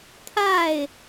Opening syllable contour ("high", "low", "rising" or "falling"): falling